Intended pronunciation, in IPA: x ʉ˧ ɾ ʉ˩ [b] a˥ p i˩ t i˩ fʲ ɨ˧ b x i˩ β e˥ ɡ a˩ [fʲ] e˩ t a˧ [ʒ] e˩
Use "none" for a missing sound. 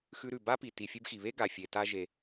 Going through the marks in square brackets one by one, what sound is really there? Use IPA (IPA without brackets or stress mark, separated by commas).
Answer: b, fʲ, ʒ